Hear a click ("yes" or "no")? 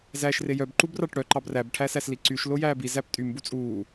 yes